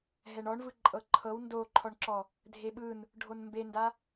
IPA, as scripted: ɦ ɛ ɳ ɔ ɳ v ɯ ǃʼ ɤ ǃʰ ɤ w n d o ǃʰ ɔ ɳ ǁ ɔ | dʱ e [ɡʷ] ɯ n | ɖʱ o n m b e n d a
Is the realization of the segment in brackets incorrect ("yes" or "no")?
yes